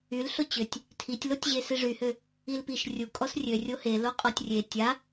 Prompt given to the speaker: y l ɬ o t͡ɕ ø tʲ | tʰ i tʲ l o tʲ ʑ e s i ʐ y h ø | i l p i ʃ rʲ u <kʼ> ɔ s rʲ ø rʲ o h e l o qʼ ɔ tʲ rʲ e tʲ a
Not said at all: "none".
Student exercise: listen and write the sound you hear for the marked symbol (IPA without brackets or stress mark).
kʼ